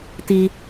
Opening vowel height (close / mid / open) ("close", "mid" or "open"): close